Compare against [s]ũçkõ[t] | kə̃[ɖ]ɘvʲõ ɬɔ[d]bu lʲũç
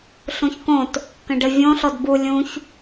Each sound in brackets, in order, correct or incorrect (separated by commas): incorrect, correct, correct, correct